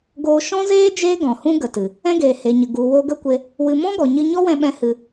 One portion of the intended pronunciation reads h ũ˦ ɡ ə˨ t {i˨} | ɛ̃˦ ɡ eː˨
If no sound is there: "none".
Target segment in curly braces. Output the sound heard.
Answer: ɨ˨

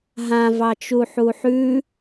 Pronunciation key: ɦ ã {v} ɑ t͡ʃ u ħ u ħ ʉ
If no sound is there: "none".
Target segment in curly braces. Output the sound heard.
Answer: v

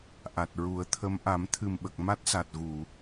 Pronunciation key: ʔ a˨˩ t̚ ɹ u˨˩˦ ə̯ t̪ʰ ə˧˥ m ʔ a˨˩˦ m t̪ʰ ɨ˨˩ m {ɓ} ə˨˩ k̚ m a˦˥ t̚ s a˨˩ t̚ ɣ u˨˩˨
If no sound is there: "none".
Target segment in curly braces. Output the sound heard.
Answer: ɓ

